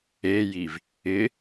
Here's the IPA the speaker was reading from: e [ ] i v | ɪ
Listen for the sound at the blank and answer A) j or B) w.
A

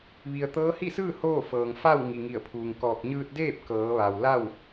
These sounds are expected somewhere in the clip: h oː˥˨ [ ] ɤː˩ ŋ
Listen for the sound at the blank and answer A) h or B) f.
B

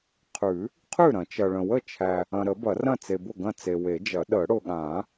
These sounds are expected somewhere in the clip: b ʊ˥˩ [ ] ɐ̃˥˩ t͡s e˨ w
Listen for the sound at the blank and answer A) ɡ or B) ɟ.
A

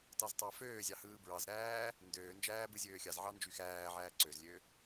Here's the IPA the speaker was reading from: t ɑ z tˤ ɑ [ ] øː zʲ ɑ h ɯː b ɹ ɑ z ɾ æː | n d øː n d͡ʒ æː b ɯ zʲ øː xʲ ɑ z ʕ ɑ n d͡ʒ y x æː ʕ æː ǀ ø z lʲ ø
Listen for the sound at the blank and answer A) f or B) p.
A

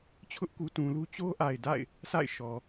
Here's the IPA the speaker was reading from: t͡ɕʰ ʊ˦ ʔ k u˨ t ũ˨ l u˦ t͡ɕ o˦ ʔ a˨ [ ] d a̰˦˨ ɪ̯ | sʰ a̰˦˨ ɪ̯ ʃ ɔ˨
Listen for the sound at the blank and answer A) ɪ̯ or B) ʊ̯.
A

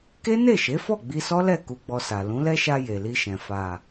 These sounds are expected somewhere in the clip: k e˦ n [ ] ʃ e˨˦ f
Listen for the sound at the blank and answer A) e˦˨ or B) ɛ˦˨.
A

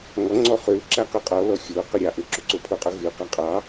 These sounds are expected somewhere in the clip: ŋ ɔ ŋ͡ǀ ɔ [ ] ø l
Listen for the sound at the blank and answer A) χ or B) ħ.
A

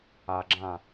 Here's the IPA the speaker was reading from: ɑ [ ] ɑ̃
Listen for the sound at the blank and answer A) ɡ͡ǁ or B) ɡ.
A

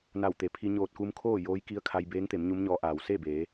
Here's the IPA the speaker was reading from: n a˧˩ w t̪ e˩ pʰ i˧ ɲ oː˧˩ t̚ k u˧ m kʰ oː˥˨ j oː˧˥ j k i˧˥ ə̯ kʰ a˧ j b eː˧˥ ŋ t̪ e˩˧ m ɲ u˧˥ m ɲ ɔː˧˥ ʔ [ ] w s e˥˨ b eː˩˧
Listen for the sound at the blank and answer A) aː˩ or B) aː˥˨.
A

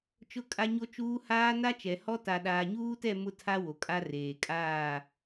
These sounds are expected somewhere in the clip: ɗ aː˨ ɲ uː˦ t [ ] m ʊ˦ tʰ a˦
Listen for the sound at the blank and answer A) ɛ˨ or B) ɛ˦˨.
B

